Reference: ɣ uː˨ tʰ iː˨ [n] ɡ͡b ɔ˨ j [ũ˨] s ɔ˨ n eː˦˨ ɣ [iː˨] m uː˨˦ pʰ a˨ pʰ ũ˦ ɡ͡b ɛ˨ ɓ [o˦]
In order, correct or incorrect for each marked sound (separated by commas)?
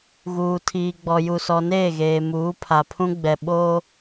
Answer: incorrect, incorrect, incorrect, correct